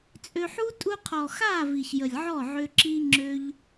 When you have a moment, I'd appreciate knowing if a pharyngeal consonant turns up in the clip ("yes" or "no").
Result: yes